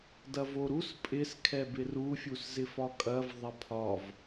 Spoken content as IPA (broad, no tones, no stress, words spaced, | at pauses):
dɐvoɾus pʼɪs kʰɛbɪru fʲuszɪfɒkʼɐv ðˤɐpʰɒv